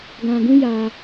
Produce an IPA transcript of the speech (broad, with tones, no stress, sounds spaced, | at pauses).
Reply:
ɡ ã˧ ɡ ũ˦ j a˧